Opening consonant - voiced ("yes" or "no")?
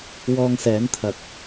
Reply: yes